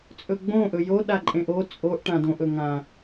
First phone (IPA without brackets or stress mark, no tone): t͡sʼ